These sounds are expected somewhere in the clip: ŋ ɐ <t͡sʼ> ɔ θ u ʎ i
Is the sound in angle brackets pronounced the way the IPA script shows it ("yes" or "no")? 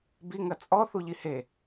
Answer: yes